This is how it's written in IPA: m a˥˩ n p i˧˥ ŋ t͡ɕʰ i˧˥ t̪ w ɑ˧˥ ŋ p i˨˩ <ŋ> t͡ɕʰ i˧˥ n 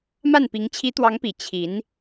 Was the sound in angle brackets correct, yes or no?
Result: no